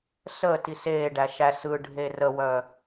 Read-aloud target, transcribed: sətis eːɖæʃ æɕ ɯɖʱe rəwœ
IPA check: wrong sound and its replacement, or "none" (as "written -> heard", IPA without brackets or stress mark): ɕ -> s